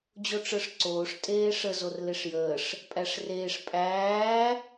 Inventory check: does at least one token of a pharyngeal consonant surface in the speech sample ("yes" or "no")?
no